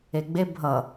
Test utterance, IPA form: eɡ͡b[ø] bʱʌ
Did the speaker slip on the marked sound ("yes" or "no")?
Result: yes